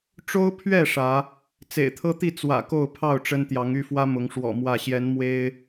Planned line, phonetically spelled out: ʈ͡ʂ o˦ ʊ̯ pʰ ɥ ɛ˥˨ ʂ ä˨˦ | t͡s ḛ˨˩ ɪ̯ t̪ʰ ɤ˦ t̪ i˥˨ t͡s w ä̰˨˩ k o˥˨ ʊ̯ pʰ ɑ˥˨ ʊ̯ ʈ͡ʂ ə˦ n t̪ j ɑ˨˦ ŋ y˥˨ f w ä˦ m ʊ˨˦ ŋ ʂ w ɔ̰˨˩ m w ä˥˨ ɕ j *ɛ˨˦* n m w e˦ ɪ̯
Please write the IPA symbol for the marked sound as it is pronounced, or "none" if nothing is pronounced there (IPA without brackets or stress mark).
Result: ɛ˨˦